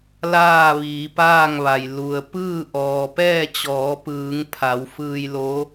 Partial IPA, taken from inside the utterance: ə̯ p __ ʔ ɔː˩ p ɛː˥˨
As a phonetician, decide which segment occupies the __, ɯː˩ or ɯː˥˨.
ɯː˥˨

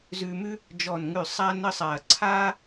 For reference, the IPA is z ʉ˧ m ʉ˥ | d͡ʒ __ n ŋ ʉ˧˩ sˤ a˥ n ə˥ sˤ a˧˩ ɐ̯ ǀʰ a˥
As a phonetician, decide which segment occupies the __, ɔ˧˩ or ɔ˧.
ɔ˧˩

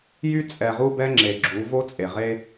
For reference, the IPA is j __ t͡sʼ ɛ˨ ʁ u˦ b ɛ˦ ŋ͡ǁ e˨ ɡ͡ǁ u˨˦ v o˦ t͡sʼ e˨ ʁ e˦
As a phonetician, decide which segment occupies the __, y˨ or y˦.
y˦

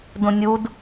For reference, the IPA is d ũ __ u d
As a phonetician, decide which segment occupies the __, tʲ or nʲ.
nʲ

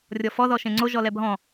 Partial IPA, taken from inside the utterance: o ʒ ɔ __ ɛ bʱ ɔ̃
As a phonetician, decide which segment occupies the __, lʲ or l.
l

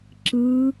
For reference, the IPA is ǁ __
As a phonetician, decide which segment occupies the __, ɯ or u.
ɯ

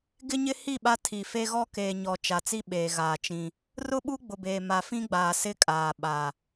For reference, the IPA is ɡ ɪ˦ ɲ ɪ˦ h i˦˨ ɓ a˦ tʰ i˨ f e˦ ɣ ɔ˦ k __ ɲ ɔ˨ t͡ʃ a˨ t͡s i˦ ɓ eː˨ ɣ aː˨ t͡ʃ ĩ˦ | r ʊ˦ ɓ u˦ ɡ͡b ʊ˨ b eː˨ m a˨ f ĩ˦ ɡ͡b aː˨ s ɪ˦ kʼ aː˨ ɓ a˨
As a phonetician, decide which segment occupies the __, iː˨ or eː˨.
eː˨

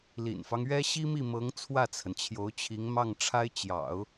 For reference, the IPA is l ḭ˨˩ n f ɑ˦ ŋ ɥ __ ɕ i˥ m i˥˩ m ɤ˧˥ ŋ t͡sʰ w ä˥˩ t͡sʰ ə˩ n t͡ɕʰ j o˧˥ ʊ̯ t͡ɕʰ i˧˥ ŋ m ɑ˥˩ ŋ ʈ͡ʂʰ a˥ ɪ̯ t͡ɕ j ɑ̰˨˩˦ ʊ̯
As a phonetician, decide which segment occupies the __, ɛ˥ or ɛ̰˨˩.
ɛ˥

